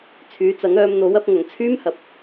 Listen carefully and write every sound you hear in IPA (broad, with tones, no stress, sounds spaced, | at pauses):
t͡sʰ yː˨˧ t͡s ɐ˨˥ ŋ œː˨˧ m n̪ o˨˥ w ɐ˧ p̚ ŋ ɐ˨˧ ŋ t͡sʰ yː˥ m h ɐ˨ p̚